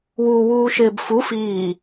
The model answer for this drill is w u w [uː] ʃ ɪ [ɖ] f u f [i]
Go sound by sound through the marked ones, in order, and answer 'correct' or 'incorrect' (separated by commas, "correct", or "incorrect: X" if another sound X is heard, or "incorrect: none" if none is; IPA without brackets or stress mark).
correct, incorrect: b, incorrect: iː